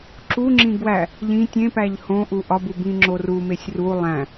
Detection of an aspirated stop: absent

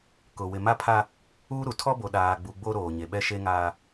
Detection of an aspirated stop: present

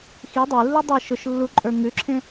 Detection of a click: present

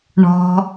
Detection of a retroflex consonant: present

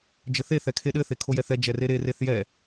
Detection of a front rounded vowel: absent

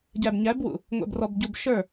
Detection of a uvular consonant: absent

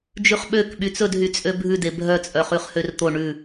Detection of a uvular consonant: present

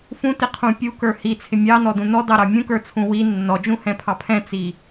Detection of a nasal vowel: present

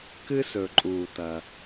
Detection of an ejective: present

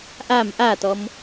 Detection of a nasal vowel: absent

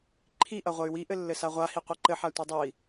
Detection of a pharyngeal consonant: present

